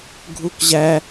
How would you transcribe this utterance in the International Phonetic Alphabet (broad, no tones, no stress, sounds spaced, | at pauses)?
ɡʱ u k ʑ æ